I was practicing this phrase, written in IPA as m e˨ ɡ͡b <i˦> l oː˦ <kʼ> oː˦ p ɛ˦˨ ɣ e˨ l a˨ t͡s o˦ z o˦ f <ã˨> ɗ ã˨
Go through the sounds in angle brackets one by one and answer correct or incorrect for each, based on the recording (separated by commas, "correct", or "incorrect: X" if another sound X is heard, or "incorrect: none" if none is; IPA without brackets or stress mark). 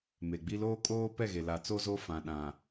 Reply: correct, correct, correct